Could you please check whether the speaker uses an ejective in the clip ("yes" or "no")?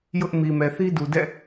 no